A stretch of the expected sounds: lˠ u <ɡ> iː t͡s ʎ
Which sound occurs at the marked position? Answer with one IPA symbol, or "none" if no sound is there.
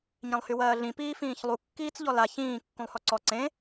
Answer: kː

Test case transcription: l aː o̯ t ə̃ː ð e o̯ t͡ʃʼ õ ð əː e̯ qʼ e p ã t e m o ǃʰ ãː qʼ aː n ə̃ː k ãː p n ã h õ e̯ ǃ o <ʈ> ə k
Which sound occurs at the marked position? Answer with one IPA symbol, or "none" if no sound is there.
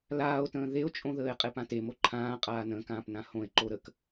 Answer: ɾ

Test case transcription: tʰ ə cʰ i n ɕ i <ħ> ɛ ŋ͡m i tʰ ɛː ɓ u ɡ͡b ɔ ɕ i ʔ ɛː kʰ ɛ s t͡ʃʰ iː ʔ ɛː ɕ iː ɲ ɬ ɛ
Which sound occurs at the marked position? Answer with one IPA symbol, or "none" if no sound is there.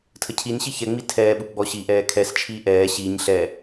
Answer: ç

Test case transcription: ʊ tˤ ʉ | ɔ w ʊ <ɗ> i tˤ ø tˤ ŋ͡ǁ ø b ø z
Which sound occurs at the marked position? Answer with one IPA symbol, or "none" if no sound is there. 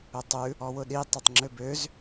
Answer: ɗ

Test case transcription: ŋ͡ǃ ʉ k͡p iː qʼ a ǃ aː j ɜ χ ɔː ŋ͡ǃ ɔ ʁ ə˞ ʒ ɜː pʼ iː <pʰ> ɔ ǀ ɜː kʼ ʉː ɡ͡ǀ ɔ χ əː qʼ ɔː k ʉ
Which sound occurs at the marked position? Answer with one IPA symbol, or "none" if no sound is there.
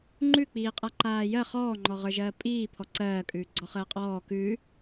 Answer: pʰ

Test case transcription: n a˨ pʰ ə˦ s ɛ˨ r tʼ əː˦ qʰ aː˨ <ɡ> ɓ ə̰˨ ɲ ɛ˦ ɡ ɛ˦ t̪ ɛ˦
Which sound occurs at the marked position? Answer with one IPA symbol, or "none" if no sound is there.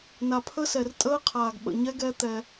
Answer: ɡ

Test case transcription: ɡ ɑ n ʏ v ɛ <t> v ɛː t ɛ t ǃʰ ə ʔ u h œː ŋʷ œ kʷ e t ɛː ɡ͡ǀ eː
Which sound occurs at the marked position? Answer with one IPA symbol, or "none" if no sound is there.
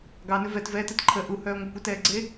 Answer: t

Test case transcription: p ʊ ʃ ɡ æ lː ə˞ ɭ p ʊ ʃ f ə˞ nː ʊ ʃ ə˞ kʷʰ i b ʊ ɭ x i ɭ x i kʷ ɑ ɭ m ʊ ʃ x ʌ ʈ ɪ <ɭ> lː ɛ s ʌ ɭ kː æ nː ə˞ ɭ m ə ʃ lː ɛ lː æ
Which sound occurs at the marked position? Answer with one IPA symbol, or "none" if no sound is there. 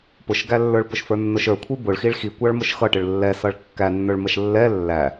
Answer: ɭ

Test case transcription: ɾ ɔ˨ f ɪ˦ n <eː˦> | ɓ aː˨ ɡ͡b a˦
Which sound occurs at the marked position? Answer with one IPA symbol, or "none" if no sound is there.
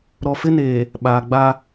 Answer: eː˨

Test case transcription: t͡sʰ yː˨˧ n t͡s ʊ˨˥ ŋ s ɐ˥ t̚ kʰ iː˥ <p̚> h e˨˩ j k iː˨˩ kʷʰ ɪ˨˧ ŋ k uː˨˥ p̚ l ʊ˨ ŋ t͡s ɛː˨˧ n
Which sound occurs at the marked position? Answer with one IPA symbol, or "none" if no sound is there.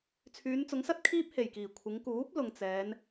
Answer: p̚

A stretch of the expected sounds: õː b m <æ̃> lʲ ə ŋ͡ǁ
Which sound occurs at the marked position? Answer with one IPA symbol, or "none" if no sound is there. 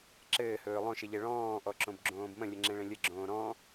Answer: ə̃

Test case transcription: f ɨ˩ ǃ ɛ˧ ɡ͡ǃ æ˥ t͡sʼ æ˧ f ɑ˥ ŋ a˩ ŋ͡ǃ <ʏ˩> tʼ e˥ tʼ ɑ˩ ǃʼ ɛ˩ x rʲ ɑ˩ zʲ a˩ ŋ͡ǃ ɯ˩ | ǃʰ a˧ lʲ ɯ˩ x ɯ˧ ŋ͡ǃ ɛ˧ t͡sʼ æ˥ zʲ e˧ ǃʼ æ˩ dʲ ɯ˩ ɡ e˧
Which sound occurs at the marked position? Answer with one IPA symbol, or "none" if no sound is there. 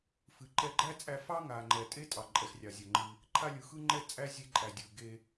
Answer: ɛ˩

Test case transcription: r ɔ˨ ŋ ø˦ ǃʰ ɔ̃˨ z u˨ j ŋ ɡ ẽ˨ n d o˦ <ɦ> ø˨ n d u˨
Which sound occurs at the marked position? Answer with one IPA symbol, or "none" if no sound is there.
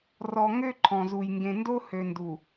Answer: h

